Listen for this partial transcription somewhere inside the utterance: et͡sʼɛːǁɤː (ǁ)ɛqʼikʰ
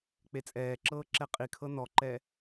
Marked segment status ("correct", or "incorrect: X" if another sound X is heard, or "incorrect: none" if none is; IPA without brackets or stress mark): correct